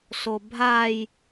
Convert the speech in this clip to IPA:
sobʱaj

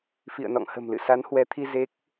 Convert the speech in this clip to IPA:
fḭ˧˨ə̯nɔ̰˧˨ŋhə̤˨˩mlɨ̰˧˨ sa˨˦nhwɛ˨˦t̪ʰi˧ ze˦˥k̚

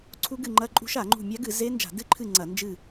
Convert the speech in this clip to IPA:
ǀʰu˦˥ɡɨ˦˨ŋ͡ǃɐ˦˥ǃʼṳ˦˥ʃ a˧˩˧ŋ͡ǃṳ˦˨ mʲa˦˥ɡɨ˧˩˧ze˦˥ nd͡ʒa̤˧˩˧dɨ˦˥ǃʰɨ˦˨ ŋ͡ǀɐ˧˩˧nd͡ʒɨ˦˨

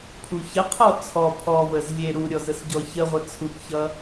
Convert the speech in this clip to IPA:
pʰuçəqʰɔ t͡sʰɔ pʰɔvəz lʲe ɾuɾʲɔ zəsɟɔçəʁʷə t͡sʰukçʌ

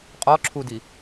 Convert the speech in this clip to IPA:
qʼɔǁʰudi

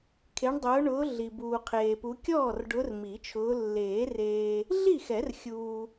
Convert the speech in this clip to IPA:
kʰe˨˦ɳdˤʊː˨˦ɳʊː˨˦ ɮi˨buː˨qʰeː˨pu˨˦ kʲɔː˥˩rɖʊ˨˦r mi˨˩˦t͡ʃʰʊː˨˦ lːeː˨˩˦reː˨ | ɮi˥˩xɛ˨˩˦r xʲuː˨

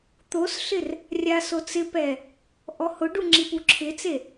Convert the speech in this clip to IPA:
t̪osɬɪr | rʲasot͡sɪpɛ | ʔɔhʊɖu ŋ͡ǁipuǁʰɪt͡se

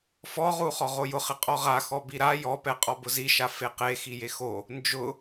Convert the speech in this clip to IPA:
fɔʁu χɔʁojʊχɪ qʼɔʁaxɔ biɾa jɔpɛqʼɔ bʊziʃa feqexi jexo | nd͡ʒʊ

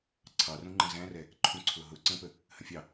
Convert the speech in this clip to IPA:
ǀʰɑrũŋ͡ǃə̃ zæ̃rɛ | ǃʰũǀʰʊɦʊ ǀə̃pə | hə̃fʲɑ

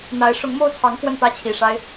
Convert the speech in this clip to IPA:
n̪a˧˥ɪ̯ ʂʊ˧˥ŋmo˥˩ʊ̯t͡sʰɑ˧˥ŋ kwə˥˩npä˥t͡ɕʰi˨˩ʂa˥ɪ̯

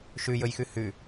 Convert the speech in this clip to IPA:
ʃʉjɵjxʉ hʉ

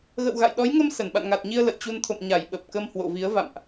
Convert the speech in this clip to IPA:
ɣə̰˧˨wɣa̰˧˨jɗɔ˨˦jŋə˧m sə˧˩n ɓa̰˧˨nŋa˨˩t̚ɲi˧ə̯ lə̰˧˨jt͡ɕu˧n t̪ʰo̰˧˨mɲa˧˩j ɓə˨˩p̚kə˧mhwo̰˧˨ vi˨˦ə̯ va̰˧˨mʔ

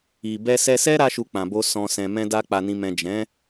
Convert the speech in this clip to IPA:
i˨ bɛ˧sɛ˧sɛ˦ ɾa˦ʃu˧k͡pã˨bo˧ sɔ̃˨sɛ̃˨ mɛ̃˧da˧ k͡pa˨nĩ˨mɛ̃˨ d͡ʒɛ̃˨˦

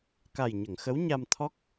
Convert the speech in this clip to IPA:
ka˨˩jɲə˨˩˨ŋ xə˧˥wɲa˧mt̪ʰɔ˦˥k̚

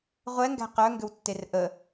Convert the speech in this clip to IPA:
ʁʷɛŋɡæ̤ qœŋɡʏwtːer ʔə

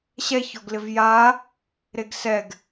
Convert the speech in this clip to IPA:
ɕɛ çɔɡlɪvja | ɾeɡsɛɡ

